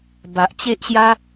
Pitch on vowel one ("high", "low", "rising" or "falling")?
low